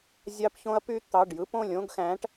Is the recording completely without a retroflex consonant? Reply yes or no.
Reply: no